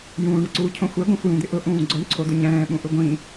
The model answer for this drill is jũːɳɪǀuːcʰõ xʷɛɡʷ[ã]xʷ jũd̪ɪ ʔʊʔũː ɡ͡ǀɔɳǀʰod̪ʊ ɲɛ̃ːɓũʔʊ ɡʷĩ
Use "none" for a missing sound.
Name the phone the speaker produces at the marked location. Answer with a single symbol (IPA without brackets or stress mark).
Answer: ã